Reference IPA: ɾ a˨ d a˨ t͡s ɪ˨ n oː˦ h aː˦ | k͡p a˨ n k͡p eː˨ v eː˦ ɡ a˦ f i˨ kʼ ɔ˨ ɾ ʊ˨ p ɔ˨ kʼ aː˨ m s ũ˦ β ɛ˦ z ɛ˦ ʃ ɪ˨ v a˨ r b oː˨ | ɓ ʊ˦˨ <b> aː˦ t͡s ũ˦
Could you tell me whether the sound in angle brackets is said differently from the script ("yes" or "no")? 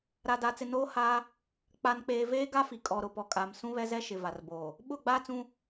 yes